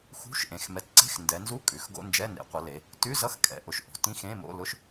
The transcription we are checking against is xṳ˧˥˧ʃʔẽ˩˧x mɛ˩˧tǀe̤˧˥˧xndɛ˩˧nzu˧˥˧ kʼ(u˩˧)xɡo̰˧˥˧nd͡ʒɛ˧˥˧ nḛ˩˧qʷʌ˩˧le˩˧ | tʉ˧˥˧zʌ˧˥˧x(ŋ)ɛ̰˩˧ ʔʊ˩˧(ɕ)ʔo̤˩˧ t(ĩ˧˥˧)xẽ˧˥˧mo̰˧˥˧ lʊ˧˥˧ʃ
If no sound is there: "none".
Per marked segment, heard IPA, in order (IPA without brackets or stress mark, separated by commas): ʉ˩˧, kʼ, ʃ, ĩ˧˥˧